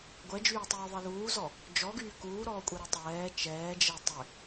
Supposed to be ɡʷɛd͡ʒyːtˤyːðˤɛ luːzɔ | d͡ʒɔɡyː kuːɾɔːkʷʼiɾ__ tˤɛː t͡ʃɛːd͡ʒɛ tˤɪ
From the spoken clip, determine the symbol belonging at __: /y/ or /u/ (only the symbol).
y